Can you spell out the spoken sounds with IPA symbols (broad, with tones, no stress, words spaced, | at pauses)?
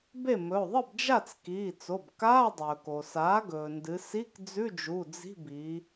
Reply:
be˥˩mɵ˩˧˩o̯ ðˤɨ˥˩bd͡ʒa˥˩t͡s kiː˩˧˩t͡so˩˧˩bkaː˧˥˧ dˤɵː˩ko˩ saː˩˥ɡɵː˩ndɨ˩˧ si˧˥˧kd͡zʉ˧˥˧d͡ʒu˩˧˩ d͡zi̤˧˥˧biː˩˧